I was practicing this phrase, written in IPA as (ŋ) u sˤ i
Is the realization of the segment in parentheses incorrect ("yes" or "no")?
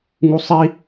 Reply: no